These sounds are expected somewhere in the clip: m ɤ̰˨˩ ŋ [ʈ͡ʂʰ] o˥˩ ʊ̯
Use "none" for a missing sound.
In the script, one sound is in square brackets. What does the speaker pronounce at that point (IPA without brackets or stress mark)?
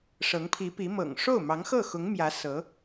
ʂ